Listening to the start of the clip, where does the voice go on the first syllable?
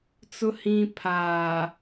low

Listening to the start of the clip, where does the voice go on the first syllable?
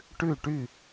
falling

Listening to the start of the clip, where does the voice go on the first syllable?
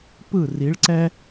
falling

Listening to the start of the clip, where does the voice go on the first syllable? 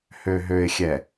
low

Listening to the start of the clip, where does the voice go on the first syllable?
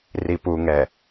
low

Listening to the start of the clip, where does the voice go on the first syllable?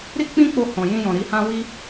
high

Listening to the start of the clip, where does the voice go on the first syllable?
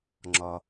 low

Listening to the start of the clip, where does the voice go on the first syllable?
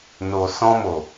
low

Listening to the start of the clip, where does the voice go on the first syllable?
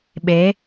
rising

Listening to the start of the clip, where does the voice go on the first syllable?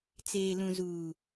low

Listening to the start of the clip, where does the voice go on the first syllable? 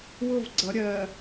falling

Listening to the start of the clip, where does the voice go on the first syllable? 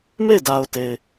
falling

